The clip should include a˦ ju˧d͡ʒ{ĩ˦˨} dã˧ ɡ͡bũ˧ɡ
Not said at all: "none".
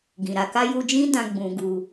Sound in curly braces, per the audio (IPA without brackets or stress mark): ĩ˦